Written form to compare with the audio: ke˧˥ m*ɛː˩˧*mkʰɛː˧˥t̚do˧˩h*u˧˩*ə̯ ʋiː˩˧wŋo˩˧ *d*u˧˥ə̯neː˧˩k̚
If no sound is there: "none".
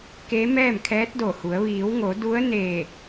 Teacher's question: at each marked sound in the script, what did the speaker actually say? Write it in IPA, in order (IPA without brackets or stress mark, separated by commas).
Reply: ɛː˥˨, u˩˧, d